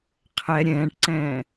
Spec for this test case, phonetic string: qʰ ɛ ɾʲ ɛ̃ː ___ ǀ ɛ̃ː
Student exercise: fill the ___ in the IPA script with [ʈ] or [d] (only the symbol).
ʈ